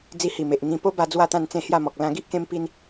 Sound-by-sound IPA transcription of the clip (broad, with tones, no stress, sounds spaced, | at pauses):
d͡z i˧ h i˨˩ m e˨ ʔ ŋ ĩ˧ p o˦ b a˧ d͡z w a˥˧ t̪ ã˥˧ n t͡s ẽ˥˧ h j a˥˧ m ɔ˨ k̚ l ã˧ ɡ i˦ ʔ k ẽ˦ m p i˦ n